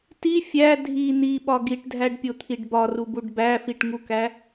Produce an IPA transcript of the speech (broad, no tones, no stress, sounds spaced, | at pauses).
t i fʲ æ dʱ i n i ɓ ɒ ɡ i ʈ dʱ æ ɖ pʲ o t̪ʰ i ɖ b ɒ r u b u ɖ b æ f i ʈ ŋ u k æ